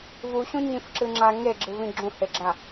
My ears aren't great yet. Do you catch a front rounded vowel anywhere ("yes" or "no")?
no